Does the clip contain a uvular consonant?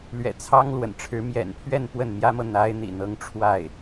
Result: no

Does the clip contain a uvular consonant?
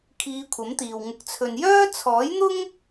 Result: no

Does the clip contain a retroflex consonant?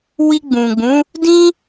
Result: no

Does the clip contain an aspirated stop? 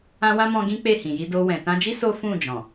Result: no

